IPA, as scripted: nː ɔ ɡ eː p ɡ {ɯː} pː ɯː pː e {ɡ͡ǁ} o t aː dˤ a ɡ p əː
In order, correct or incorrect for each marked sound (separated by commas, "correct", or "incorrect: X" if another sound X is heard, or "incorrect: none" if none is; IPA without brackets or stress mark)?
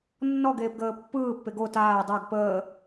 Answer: incorrect: əː, incorrect: ɡ